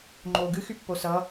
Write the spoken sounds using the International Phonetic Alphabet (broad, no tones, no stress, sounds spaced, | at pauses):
ŋ͡ǃ oː ɡ ɨ x y pː o s ʌ